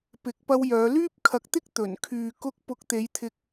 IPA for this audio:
p ɪ˨˥ k̚ p ɐ˧ w j œː˨˧ l yː˥ p̚ kʰ ɐ˧ k̚ t̪ ɪ˥ k̚ t̪ ɵ˨˩ n kʰ yː˨ k ʊ˧ k̚ p ʊ˨˥ k̚ t̪ e˨˧ j t̪ʰ ɪ˧ k̚

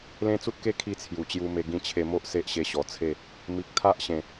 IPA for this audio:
l ẽ˦ t͡s u˦ t̚ k e˥˧ kʰ i˥˧ t͡sʰ j u˨˩ t͡ɕ j u˧ m e˧ ɡ ĩ˧ t͡ɕʰ e˧ m o˦ ʔ s e˦ ʔ ɕ e˧ ɕ ɔ˨˩ t͡sʰ e˥˧ | m i˨ k̚ t̪ʰ a˦ ʔ ɕ ẽ˨˩

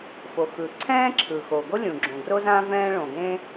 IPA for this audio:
f o˩ x ɯ˩ ǀʰ ɛ̃ː˥ ǁʰ ɯ˩ x o˩ ɡ o˥ lʲ ũ˩ ɡ͡ǁ õ˩ ɡ r o˥ z ã˥ v ɛ̃ː˥ ɭ õ˩ ɡ ẽ˥

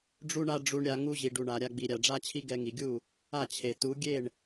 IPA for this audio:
ɖ͡ʐ u˦ ɳ a˦ ɖ͡ʐ u˧ ɳ ɾʲ a˧ ŋ u˧ ʑ i˨ ɖ u˨ ɳ a˨ ɾʲ a˧ ɡ͡b i˨ ɾʲ a˨ ɖ͡ʐ a˧ t͡ɕʰ i˧ ɡ ɛ˧ ŋ i˨ ɡʲ u˦˨ | a˦˨ t͡ɕʰ e˨ t u˨˦ ɡʲ e˦˨ ɳ

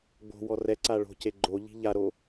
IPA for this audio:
ɡ͡b o̤ w ɔ r ɛ ǀ a ɭ o̤ c e ɡ͡ǃ o ʎ i̤ ʎ a ɾ o

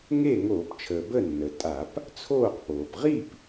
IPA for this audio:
ŋ e˥˨ ŋ oː˧˩˧ p t͡ʃʰ əː˩ b ə˥˨ nː ə˩ tʼ a˧˩˧ p | t͡sʰ oː˥˨ q p oː˩ p ʁ i˥˨ p

